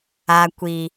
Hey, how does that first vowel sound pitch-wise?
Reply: low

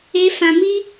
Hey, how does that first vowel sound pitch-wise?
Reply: high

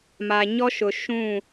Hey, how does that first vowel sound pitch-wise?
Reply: low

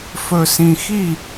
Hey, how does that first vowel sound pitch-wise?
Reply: low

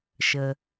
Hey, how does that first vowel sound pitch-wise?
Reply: low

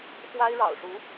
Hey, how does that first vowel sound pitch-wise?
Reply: high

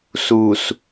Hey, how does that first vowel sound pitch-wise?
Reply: low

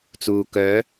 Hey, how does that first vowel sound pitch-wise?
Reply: low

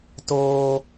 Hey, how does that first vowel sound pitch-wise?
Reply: high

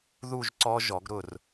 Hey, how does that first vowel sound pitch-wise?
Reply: falling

